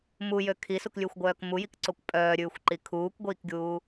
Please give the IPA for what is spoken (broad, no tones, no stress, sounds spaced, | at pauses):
m u j ø kʰ i s u k lʲ ʉ xʷ ɡʷ œː k m u j i k ǀ o kʷ pʼ œː ɾʲ ʉː xʷ ǃ i kʰ uː kʷ ɡʷ iː k ɡʲ uː